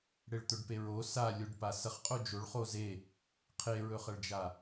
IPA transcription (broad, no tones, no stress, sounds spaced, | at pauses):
ɽ e ɭ t̪ ɵ ɖ p e ɹ o s a lʲ o ɖ p a s ɐ χ qʼ o d͡ʒ o ɭ χ o z e | qʰ e ɹ ɵ χ ɐ ɭ d͡ʒ a